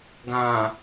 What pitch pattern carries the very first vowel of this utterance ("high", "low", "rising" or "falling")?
low